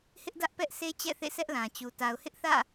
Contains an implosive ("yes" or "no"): no